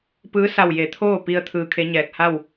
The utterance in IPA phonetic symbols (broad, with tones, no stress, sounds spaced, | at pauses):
p ɯː˧˥ s a˧˩ w j e˩˧ t̪ʰ oː˥˨ p i˧ ə̯ t̪ʰ ɯː˧ kʰ e˧˥ ɲ ɛː˧˩ k̚ h a˥˨ w